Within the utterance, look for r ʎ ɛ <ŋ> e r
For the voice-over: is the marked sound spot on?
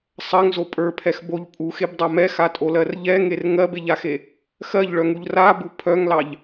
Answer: yes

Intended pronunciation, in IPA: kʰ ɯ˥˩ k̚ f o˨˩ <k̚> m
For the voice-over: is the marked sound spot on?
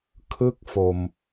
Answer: no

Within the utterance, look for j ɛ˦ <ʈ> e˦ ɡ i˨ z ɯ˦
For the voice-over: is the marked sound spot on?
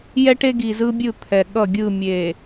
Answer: yes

